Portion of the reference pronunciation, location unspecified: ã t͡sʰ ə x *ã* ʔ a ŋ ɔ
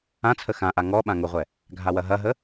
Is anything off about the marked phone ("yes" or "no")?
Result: no